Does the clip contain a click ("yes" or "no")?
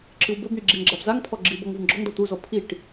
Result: yes